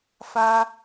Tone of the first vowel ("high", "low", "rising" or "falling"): high